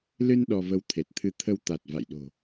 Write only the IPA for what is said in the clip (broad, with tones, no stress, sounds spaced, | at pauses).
l ɨ˧ n ɗ ɔ˧ v ə˧ w t̪ʰ e˨˩ t̚ t̪ʰ ɨ˧ t̪ʰ ə˧ w t̪ a˨˩ t̚ v a̰˧˨ j ɗ o̤˨˩